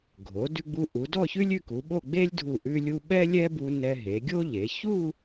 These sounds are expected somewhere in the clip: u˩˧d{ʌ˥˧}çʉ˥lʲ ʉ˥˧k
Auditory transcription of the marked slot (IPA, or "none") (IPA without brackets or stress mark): ɔ˥˧